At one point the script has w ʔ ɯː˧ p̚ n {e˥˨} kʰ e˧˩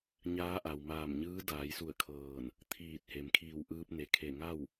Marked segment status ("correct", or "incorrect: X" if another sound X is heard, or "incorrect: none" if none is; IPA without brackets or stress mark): incorrect: e˩